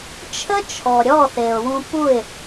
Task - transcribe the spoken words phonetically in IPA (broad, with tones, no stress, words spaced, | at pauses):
t͡ʃʰə˦t͡ʃʰɔ˨ɾʲɔ˦˨ θe˨ʊ̯wũ˧pu˦˨ɪ̯